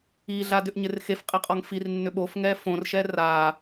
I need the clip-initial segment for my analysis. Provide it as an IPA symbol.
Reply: i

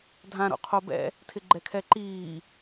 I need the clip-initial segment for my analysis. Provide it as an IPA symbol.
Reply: dʱ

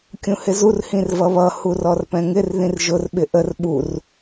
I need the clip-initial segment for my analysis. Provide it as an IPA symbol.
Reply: kʲ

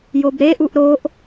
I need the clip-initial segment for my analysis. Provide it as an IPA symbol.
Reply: j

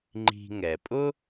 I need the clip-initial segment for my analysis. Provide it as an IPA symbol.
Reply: ŋ͡ǃ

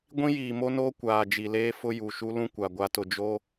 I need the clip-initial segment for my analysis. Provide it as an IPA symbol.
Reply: ɡʷ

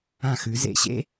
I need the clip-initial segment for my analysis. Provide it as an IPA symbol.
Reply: ã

